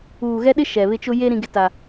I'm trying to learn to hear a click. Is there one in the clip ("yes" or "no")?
no